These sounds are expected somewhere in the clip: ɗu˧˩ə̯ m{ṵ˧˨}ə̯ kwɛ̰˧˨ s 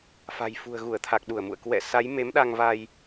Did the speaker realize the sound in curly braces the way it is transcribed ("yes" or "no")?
yes